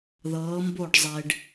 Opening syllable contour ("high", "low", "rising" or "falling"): rising